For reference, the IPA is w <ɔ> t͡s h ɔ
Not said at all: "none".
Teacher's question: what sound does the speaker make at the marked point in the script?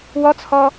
ɔ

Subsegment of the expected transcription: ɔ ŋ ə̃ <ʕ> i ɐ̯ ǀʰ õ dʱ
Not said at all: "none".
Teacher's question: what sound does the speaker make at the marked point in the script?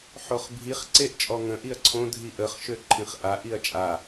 ʔ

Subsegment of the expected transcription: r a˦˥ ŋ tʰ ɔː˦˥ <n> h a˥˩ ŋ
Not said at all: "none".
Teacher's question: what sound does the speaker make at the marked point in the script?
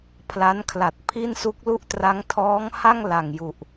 ŋ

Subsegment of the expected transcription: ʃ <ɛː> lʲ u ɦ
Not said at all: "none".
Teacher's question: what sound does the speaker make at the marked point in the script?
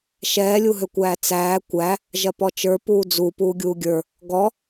ɛː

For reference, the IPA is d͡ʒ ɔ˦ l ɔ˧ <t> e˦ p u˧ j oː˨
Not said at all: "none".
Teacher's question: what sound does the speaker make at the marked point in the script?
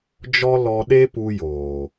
ɗ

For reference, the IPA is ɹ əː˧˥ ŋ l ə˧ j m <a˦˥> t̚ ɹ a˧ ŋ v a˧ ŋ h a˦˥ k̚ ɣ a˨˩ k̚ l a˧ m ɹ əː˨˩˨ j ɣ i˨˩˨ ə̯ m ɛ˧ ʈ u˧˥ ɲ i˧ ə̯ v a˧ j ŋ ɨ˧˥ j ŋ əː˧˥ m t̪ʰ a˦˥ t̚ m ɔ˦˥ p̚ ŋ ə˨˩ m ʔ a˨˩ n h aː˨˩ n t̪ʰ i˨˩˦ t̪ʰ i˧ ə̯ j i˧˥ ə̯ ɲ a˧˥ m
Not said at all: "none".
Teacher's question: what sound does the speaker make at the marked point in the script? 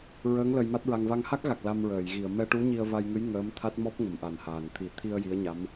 a˦˥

